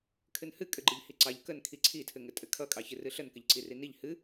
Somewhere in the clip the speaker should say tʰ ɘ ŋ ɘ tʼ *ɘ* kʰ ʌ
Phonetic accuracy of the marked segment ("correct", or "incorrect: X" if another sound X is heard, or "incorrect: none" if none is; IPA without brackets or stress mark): correct